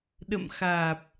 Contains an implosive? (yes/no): yes